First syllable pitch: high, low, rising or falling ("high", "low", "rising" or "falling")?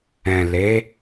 low